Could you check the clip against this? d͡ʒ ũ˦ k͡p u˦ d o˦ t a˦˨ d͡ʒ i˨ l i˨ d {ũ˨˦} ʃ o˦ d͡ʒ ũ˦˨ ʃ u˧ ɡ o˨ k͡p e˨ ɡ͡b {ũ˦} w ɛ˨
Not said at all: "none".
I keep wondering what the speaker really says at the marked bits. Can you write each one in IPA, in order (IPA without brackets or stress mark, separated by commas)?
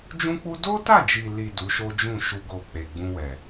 u˨˦, ũ˧